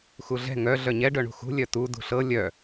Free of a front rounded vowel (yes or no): no